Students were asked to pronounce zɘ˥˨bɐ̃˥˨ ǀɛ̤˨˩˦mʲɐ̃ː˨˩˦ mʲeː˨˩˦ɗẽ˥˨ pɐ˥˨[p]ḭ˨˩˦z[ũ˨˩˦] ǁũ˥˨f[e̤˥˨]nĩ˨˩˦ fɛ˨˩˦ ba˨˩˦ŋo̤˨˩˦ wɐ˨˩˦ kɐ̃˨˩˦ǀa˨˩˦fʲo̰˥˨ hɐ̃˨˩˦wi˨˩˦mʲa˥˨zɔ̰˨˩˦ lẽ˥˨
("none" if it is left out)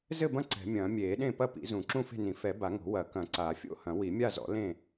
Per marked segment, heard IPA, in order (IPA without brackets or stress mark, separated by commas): p, ũ˨˩˦, e̤˥˨